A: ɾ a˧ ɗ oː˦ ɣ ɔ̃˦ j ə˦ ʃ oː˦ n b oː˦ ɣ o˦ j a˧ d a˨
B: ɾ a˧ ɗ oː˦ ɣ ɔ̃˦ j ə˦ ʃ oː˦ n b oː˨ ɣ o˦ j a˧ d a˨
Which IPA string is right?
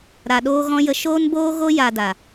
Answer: A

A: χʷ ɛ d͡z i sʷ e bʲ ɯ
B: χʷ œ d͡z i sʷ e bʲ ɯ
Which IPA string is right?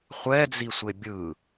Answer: A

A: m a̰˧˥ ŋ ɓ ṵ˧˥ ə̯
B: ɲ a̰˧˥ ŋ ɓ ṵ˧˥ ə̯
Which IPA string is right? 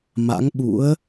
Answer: A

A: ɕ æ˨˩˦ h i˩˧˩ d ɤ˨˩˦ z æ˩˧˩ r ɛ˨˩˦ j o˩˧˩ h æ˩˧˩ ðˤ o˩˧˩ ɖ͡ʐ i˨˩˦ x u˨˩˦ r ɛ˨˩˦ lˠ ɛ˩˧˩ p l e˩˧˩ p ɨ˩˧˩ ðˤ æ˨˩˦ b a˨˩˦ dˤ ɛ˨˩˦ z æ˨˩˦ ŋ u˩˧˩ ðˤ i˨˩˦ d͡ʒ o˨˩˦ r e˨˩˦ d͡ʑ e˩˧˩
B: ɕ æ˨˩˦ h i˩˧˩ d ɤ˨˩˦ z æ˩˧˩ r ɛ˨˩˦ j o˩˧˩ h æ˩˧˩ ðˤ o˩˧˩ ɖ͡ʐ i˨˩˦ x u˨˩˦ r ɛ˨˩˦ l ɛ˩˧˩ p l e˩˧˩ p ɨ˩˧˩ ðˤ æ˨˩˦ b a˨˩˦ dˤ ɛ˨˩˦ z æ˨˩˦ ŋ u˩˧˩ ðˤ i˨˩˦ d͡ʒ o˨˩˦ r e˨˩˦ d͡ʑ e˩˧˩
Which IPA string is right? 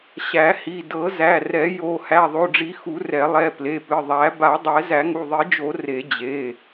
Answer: A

